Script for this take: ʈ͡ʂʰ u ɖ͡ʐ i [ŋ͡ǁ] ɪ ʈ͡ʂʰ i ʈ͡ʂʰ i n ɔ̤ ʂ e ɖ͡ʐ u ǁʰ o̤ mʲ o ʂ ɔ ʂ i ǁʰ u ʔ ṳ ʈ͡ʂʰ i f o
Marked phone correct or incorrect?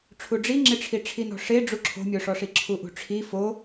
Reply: correct